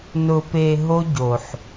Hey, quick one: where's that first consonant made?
tongue tip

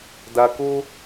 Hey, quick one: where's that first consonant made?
tongue tip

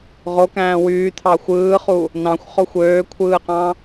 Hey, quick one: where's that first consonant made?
uvula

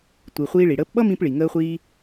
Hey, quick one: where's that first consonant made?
tongue tip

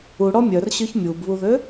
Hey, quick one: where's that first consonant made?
retroflex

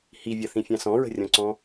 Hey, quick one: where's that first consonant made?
throat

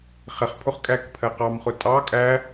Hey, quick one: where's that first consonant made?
uvula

